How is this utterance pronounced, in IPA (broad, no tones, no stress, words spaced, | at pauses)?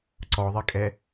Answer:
ǀɔðˤikʼɛ